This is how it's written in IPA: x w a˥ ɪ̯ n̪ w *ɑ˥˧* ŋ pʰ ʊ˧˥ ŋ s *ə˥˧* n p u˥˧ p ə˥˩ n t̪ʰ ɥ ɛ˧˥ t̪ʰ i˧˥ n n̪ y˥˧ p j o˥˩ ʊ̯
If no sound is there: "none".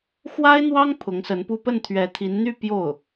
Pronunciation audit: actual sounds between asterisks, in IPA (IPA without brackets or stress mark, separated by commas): ɑ˥, ə˧˥